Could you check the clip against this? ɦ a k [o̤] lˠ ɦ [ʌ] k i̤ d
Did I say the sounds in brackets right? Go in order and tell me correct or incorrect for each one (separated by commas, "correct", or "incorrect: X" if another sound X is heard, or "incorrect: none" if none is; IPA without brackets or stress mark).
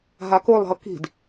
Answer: incorrect: o, correct